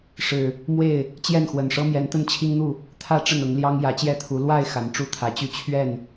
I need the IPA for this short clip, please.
ʂ ɻ̩˨˩ | m w e˥˨ ɪ̯ | t͡ɕ j ɛ˥˨ n x w ə˨˩ n ʂ ɤ˦ m j ɛ˨˦ n t̪ ə˥˨ n t͡ɕʰ i˦ ŋ n̪ u˥˨ | t̪ʰ ä˦ ʈ͡ʂ ə˥˨ n ʊ˨˦ ŋ l j ɑ˦ ŋ j ä˨˦ t͡ɕ j ɛ˥˨ t̪ʰ u˨˦ l w a˥˨ ɪ̯ x a˨˦ n ʈ͡ʂ u˥˨ t̪ʰ ä˨˦ t͡ɕ y˥˨ t͡ɕʰ ɥ ɛ˥˨ n

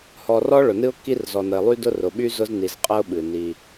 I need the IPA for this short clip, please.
h ɔ˨ r ɔ˦ ɭ ʊ˨ n ɨ˦ ʊ̯ kː i˦ r z ɔ˨ n ə˨ ɪ̯ lˠ y˦ d ʊ˦ r ʊ˨ ɓ y˦ z ʊ˦ z n i˨ z qʼ ə˦ ʊ̯ ɓ ɨ˨ n i˦

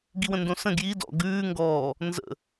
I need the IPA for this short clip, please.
ɡ i w ə̃ n d õ s ə̃ ɡ j i d ɔ̰ ɡ ʉː ŋ ɡ ɔː | n z ə̰

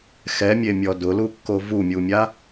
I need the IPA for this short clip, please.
x ɛ mʲ e mʲ ɔ d ʊ l u kː o v u mʲ u mʲ a

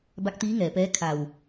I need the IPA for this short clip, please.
b a˧˥ k̚ t̪ iː˧˥ ŋ ɛː˩ p ɛː˧˥ kʰ a˧˩ w

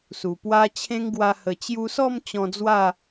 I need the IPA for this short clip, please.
s u˨˩ p w a˧ t͡ɕʰ ẽ˦ ŋ ɡ w a˧ h ə˨˩ t͡ɕ j u˧ s ɔ˥˧ m t͡ɕ ɔ̃˧ d͡z w a˥˧

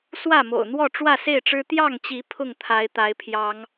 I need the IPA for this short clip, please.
s w ä˥˨ m o̰˨˩ ʊ̯ n̪ w ɔ˥˨ ʈ͡ʂ w ä˥˨ s e˥˨ ɪ̯ ʈ͡ʂ ɻ̩˦ t̪ j ɑ˥˨ ŋ t͡ɕ i˨˦ pʰ ʊ˥˨ ŋ t̪ʰ a˨˦ ɪ̯ t̪ a˨˦ ɪ̯ pʰ j ɑ˨˦ ŋ

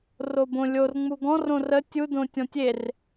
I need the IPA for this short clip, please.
r o b õ lʲ o r ŋ͡m u ɡ ɔ̃ r õ r ə tʲ u d õ tʲ ɔ̃ tʲ e r

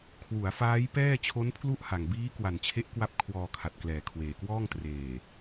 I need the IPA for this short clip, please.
kʰ w u˩˦ a̯ f aː˦˥ j p ɛː˥˩ t͡ɕʰ o˦˥ n pʰ l u˥˩ ʔ h a˨˩ ŋ b iː˦˥ k w a˨˩ n t͡ɕʰ e˦˥ ʔ k w a˦˥ p̚ kʰ w ɔː˧ kʰ a˨˩ t̚ k l ɛː˨˩ kʰ w eː˨˩ k w ɔː˥˩ ŋ t r eː˨˩

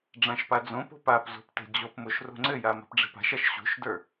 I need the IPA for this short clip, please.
ɖ͡ʐ ã ʃ p a d͡z õ p o̤ p a p z o̤ p t e̤ d͡ʑ o p m o ʃ r o̤ ŋ͡ǀ ɘ j a m a̤ p ɖ͡ʐ e̤ p a̤ ʃ a ʃ ɕ o̤ ʃ d ə˞

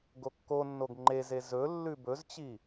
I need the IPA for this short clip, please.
ɡ o kː o nː o ɡ ŋ͡ǃ e z e z ɵ lː ʉ b ɵ z t͡ɕ i

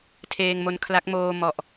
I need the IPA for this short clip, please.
tʰ eː˧ ŋ m o˧ n kʰ l a˦˥ k̚ m oː˧ m ɔ˨˩ ʔ

